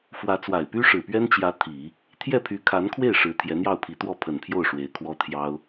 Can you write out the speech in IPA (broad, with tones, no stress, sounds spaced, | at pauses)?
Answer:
f w ä˧˥ t͡s w a˨˩ ɪ̯ p y˥ ʂ ɻ̩˨˩ p ɥ ɛ˥ n t͡ɕ j ä˧˥ t̪ʰ i˨˩˦ | t̪ʰ j ɛ˥˩ pʰ y˧˥ kʰ a˧˥ n kʰ w e˥˩ ɪ̯ ʂ ɻ̩˧˥ t̪ʰ j ɛ˧˥ n̪ j ɑ˥˩ ʊ̯ pʰ i˧˥ t̪ w ɔ˥˩ pʰ ə˨˩ n pʰ j o˥˩ ʊ̯ ʂ w e˧˥ ɪ̯ kʰ w ɔ˥ t̪ʰ j ɑ˥ ʊ̯